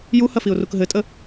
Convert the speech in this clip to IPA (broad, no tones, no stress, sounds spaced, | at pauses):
j u h ɐ f i ʊ̯ r u k ɦ ɘ tʼ ə